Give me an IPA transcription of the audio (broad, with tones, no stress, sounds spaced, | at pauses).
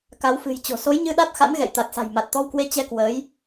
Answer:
k a˨˦ w f ɨ̤˨˩ j t͡ɕ o̤˨˩ s o˨˦ j ɲ ɨ˧ ɗ a˦˥ t̚ x a̰˧˥ n ɣ ɛ̰˧˨ j t̪ a˨˩ t̚ s a̤˨˩ j m a˨˩ t̚ t̪ ɔ˧ w k w e˧ t͡ɕ ɛ˧ k w əː˨˦ j